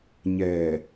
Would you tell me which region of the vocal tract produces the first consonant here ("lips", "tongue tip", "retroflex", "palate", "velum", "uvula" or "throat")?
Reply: palate